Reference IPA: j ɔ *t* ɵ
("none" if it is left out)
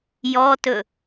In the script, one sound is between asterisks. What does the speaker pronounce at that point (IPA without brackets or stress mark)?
t